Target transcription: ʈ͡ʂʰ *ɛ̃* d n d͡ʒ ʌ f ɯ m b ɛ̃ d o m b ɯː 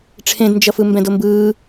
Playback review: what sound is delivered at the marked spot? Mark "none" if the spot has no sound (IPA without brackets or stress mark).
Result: ẽ